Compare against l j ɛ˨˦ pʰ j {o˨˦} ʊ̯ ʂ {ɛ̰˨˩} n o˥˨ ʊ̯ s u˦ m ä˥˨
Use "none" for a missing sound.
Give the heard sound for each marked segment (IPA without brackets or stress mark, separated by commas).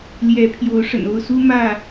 o˨˦, ə̰˨˩